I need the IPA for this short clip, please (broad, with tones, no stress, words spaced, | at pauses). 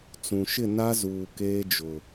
t͡sũ˨ʃɪ˦˨ na˦zuː˨ keː˦d͡ʒʊ˨